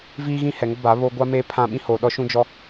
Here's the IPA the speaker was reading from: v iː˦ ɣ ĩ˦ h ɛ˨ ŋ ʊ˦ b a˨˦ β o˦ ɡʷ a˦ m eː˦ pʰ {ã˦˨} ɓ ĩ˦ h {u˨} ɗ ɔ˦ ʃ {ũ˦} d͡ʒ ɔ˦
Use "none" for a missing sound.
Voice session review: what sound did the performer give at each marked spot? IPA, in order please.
ã˦˨, o˨, ũ˦

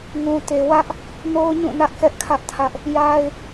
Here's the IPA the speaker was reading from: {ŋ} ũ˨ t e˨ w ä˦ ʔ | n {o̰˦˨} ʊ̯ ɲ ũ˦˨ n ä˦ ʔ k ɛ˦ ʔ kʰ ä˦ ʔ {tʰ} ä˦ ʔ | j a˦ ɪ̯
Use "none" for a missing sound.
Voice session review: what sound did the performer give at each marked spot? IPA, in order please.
ŋ, o˦, tʰ

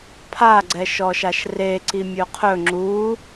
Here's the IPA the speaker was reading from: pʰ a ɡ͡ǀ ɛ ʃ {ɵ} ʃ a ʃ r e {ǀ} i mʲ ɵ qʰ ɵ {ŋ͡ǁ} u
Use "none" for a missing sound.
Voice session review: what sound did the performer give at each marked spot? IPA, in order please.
ɔ, ǀ, ŋ͡ǁ

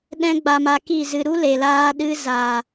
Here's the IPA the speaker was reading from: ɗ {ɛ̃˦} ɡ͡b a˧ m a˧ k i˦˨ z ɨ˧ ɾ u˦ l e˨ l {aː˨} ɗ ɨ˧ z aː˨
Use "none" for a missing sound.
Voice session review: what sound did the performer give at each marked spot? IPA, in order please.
ɛ̃˦, aː˧

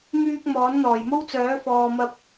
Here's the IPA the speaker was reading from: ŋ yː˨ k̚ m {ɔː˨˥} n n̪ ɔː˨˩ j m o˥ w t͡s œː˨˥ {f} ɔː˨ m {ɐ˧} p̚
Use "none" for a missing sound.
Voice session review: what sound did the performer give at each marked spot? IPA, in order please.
ɔː˨˥, f, ɐ˧

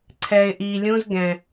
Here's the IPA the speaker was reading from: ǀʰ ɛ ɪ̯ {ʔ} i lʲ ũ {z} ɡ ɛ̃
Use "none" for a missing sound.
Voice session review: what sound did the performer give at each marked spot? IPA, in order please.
ʔ, z

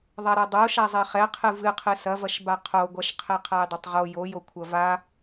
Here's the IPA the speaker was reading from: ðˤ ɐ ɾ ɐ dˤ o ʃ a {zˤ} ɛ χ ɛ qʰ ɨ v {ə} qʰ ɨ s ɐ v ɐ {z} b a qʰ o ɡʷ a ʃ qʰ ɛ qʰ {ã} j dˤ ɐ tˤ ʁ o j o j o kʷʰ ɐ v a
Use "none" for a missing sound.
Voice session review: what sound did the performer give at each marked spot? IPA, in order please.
zˤ, ɨ, ʃ, a

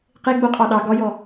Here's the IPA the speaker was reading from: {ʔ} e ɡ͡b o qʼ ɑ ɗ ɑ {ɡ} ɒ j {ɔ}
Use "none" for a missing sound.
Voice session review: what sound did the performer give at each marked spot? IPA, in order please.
q, ɡ, ɔ

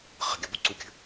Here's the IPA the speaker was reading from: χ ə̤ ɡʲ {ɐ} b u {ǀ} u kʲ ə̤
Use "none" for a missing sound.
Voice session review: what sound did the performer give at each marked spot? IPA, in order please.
ɐ, ǀ

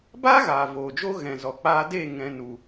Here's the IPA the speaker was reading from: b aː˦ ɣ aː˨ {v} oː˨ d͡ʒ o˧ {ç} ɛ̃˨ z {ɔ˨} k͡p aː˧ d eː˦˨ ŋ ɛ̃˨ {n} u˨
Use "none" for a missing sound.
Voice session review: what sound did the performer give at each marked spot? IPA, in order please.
v, ɣ, ɔ˨, n

